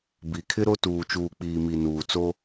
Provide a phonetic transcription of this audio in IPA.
bi˨kʰɪ˦ɾo˦ tuː˨t͡ʃuː˨k͡piː˨ mi˨ nuː˨t͡so˦

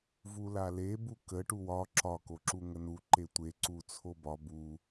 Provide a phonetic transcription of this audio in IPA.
vulale bukə ʈuwɒ ǁɒ koǁuŋənu ǃetʷe ǀut͡sʰobɒ bu

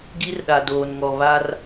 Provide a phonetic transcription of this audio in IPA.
ɡi˦rɗa˨doː˨nŋɔ˨ βa˦r

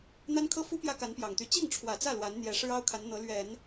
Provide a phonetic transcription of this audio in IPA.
n̪a˥nkʰɤ˥fu˥ pjä˥ka˧˥npjɑ˨˩ŋt̪y˧˥ t͡ɕi˥˩ŋʈ͡ʂʰwä˨˩t͡sä˥˩ lwa˧˥nn̪jɛ˧˥ ʂɻ̩˥ɑ˥ʊ̯kʰa˧˥n n̪ɤ˧˥lɥɛ˨˩˦n

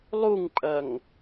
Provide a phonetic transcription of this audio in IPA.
lˠuŋpʼɐŋ

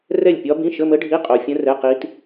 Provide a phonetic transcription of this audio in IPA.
rɛ˥˨lʲpʲɒ˦˥bĩ˧˥˧ ʃə˧˥˧mə˦˥ɖʱi˧˥˧ qʼo˧ fʲə̃˦˥rɛ˧˥˧qi˦˥t

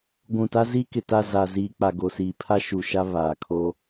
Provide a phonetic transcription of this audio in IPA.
ɡʷũ˨ta˦zi˦ kɪ˨ta˦˨ za˨ziː˨k͡pa˨ ɡo˨siː˨pʰa˦ ʃu˨ ʃa˦ βaː˨kʰo˦

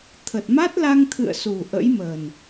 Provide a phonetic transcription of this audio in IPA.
t̪ʰə˨˩t̚ma˦˥t̚la˧ŋ t̪ʰɨ̰˧˨ə̯ su˨˩ ʔə̰˧˥jməː˨˩n

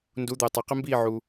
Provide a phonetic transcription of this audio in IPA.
ndu˨˦d̪əː˨ tˤa˨qɪ˦mbiː˦˨ ʕu˨

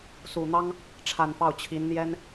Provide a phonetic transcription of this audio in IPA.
su˨˩n̪ɑ˥ŋ | ʈ͡ʂʰa˨˩nfɑ˥˩ʊ̯t͡ɕʰi˧˥n n̪jɛ˥n

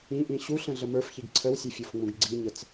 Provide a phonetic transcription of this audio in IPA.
ĩʔĩ ɕu ɬə̃ɮəmə˞fçiɡ ǀʰəwsʲɛfʲofŋ͡mũɡ ɡ͡ǀiɲət͡s

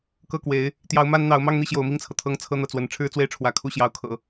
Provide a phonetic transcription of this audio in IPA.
kɤ˥˩kwe˧˥ɪ̯ | t̪jɑ˧˥ʊ̯ ma˥nn̪ɑ˧˥ʊ̯ mɑ˥˧ŋn̪i˥˩ ɕjo˧˥ʊ̯mi˥˩ŋt͡sʰɤ˩t̪ʰɤ˥ŋ t͡sʰɤ˥n̪ɤ˥˩t͡swə˧˥n ʈ͡ʂʰɻ̩˥t͡swe˥˩ɪ̯ʈ͡ʂʰwä˧˥ kʰu˥˩ɕjɑ˧˥ʊ̯kʰɤ̰˨˩˦

